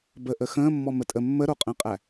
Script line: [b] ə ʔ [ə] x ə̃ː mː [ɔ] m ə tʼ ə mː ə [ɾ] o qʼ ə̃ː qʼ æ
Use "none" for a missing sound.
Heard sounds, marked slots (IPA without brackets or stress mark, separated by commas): b, ə, ɔ, ɾ